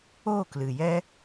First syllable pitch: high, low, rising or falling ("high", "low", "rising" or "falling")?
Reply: falling